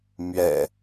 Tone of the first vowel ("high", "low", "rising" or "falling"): low